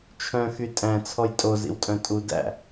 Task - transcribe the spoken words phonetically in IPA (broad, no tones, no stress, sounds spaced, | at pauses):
t͡ʃʰ œ̃ x y tʼ æ̃ t͡sʰ ɔ j tʼ o z ḭ w tʼ œ̃ tʼ u d æ̰